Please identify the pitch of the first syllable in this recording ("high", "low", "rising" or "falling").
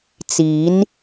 rising